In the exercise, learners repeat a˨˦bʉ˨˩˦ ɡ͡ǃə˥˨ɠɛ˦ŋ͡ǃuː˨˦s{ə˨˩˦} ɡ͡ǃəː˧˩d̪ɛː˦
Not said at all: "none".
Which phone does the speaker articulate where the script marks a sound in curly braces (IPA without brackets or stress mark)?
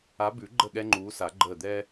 a˨˩˦